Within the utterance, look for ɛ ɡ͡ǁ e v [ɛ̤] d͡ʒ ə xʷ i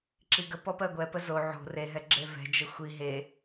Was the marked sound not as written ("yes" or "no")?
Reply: no